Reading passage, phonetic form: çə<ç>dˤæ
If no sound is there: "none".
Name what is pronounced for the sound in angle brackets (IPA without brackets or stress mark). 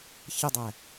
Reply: none